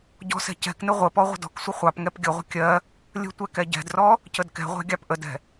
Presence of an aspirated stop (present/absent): absent